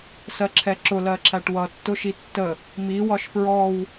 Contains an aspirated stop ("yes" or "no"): yes